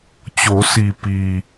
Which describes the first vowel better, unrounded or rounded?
rounded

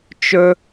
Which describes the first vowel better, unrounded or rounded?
rounded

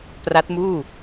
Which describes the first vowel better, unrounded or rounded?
unrounded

